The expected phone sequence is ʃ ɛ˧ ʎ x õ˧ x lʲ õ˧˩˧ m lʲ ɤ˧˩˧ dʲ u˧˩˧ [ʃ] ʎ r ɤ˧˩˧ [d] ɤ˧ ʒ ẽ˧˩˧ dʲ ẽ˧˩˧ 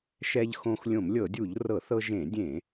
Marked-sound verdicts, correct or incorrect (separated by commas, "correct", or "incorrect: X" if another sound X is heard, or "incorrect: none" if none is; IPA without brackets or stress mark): incorrect: none, incorrect: θ